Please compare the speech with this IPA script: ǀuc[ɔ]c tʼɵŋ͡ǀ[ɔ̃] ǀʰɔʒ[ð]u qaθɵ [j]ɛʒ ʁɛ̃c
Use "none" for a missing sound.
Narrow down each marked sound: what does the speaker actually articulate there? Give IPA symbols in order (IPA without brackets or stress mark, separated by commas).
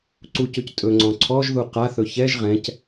ɵ, ɔ̃, ð, ç